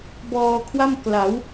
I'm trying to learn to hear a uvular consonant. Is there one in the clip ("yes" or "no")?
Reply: no